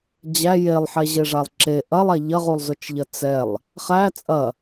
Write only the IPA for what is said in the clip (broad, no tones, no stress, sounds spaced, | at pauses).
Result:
d͡ʑ æ j e lˠ ħ ɛ ʑ e ʐ a lˠ ǁ e ʔ ɐ lˠ a ʎ ɐ ʁ u lˠ z ʊ t͡ʃ ʎ ɐ t͡s ɛ lˠ | χ æ t͡sʼ ɐ